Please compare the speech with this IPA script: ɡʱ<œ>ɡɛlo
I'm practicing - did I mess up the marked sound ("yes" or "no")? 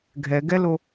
yes